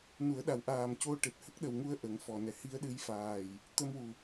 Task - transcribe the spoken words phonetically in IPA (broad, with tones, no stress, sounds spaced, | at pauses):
n u˨˩˦ ə̯ ɗ a˨˩ w ʔ aː˨˩ m c o˧ ʈ e˨˩ t̚ h ə˦˥ k̚ ɗ ə˨˩ w ŋ u˧ ə̯ ʔ ə˨˩˦ ŋ f ɔ˨˩ n ɛ˨˩˦ h i˧˥ ə̯ ɗ ɨ˧˥ j f aː˨˩ j | t̪ ə˧ m w u˨˩